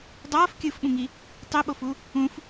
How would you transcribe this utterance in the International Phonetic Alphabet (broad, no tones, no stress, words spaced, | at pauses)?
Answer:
dˤʌːf kʲɯfɓũŋi | tˤiɓofu | ũf